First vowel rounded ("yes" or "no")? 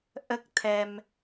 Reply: no